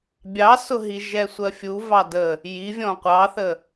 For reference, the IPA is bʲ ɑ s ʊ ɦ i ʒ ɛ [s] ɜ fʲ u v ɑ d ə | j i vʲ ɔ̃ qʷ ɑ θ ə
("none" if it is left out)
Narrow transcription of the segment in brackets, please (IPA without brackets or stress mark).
sʷ